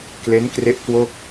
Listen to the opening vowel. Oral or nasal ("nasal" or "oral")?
oral